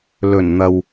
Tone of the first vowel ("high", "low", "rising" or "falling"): low